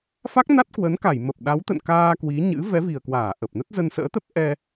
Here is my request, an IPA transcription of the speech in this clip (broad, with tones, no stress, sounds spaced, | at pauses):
f a˦˥ k̚ n a˦˥ t̚ k w ə˨˦ n k a˧˩ j m ə˨˩ p̚ ɗ a˨˦ w t̪ ə̰˧˨ n k aː˧ k w i˨˦ ɲ ɨ̰˧˥ v ɛ˨˦ v i˨˩ ə̯ k w aː˧˩ ʔ ə˨˩ p̚ n ə˦˥ t̚ z ə˧ n s ə̰ː˧˥ t̪ ə˦˥ p̚ ʔ ɛ˧